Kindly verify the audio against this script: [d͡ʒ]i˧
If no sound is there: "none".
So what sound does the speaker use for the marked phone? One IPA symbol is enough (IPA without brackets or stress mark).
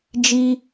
d͡ʒ